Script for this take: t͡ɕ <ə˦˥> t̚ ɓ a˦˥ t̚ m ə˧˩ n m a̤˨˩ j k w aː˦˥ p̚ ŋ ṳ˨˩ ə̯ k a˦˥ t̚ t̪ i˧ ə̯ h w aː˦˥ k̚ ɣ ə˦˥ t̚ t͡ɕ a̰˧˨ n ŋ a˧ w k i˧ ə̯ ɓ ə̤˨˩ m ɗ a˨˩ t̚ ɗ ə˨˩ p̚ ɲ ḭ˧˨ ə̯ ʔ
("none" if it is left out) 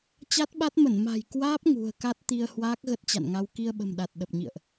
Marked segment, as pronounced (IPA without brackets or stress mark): a˦˥